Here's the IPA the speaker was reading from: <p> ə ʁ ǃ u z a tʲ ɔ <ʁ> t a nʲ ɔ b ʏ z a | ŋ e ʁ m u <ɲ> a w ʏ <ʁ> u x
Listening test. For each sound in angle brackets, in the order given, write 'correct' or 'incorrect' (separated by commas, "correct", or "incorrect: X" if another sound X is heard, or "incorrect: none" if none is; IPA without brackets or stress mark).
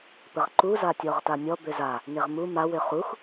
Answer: correct, correct, incorrect: m, incorrect: χ